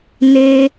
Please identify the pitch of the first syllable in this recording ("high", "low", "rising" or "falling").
high